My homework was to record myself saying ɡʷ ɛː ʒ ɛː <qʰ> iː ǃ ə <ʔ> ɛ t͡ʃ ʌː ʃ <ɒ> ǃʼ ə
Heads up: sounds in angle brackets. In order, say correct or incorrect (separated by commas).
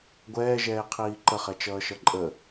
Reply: correct, incorrect, incorrect